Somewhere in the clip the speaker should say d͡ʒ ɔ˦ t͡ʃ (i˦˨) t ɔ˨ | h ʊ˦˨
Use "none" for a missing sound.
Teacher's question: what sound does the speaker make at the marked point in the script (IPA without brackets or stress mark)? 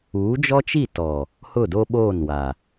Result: i˦˨